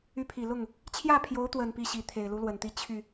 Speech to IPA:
y˧˥ pʰ i˨˩ l ʊ˥˩ ŋ | t͡ɕʰ j ä˥˩ pʰ j o˧˥ ʊ̯ t̪ w ə˨˩ n p i˥˩ ɕ i˧˥ t̪ʰ e˨˩ ɪ̯ l u˧˥ l w ə˨˩ n t̪ i˧˥ t͡ɕʰ y˥˩

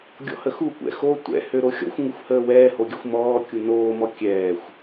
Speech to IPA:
ɡʲ ɔ̰ h ə x u kʷ ɛ̰ x o tʷ ɛ̰ h ø ɾ o xʲ ɔ̰ xʷ ŋ u xʷ h əː w ɛː h o ɡʲ ə xʷ m ɔː kʲ u n oː m ɔ kʲ ɛː xʷ

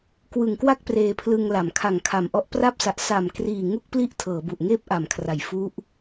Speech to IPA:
k w ɯ˨˩ ŋ k w a˥˩ k̚ p r eː˧ pʰ l ɯ˧ ŋ l a˩˦ m kʰ a˨˩ ŋ kʰ a˨˩ m ʔ ɔ˦˥ ʔ p r a˦˥ p̚ s a˨˩ ʔ s a˨˩ m k r iː˨˩ ŋ u˥˩ k̚ p l i˥˩ ʔ tʰ ɤː˩˦ b u˨˩ ʔ ŋ eː˥˩ p̚ ʔ a˩˦ m kʰ r a˨˩ j f u˦˥ ʔ

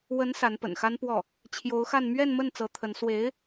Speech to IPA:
w ə˧˥ n s a˧˥ n p ə̰˨˩ n x a˥ n p w ɔ˥˩ | t͡ɕʰ j o˧˥ ʊ̯ x a˥˧ n m ɥ ɛ˥˧ n m ə˥˩ n t͡s ɤ˧˥ t̪ʰ ə˧˥ n s w e˧˥ ɪ̯

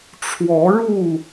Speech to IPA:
ʈ͡ʂʰ w ɔ˨˦ ɻ u˥˨

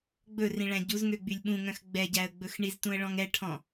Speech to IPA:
ɡ͡b ɵ r ĩ ɭ æ̃ ɟ u z ŋ ø ɡ͡b y lʲ ɓ ũ ŋ œ̃ x ɡ͡b ɛ ɟ æ ə̯ ɡ͡b ɵ x ɳ i z t ũ ə̯ ɭ ɔ̃ ŋ ɛ ʈʰ ɔ̃

